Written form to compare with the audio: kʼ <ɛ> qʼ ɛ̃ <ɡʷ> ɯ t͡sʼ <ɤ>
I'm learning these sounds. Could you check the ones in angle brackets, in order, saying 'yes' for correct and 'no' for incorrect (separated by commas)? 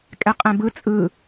yes, no, no